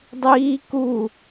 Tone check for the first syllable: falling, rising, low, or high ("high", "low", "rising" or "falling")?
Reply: high